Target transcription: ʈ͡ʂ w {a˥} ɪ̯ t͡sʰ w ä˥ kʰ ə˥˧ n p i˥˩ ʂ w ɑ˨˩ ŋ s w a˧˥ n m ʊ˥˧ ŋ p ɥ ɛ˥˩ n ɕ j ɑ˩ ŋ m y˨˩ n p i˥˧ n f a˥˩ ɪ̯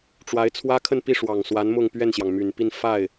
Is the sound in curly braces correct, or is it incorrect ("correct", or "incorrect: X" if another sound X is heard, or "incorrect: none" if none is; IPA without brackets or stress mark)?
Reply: incorrect: a˧˥